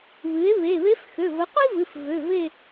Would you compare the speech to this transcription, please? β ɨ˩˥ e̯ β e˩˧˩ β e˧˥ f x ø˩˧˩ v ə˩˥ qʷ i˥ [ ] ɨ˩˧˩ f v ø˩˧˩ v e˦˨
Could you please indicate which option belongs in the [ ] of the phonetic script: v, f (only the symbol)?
v